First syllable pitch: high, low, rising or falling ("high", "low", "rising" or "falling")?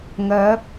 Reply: rising